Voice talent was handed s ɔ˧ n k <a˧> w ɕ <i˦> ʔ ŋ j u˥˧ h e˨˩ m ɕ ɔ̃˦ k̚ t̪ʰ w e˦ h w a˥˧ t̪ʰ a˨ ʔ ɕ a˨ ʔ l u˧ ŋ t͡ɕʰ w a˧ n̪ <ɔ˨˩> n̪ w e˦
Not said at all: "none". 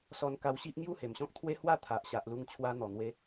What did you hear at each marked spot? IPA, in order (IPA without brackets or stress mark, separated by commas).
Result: a˧, i˦, ɔ˨˩